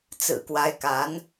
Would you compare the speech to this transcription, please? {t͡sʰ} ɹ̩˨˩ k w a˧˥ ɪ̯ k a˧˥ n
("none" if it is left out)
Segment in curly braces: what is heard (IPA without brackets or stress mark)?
t͡s